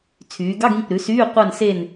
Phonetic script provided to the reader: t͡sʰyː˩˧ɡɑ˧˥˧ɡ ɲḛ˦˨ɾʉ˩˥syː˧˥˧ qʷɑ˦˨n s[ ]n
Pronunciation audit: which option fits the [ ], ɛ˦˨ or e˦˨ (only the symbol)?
e˦˨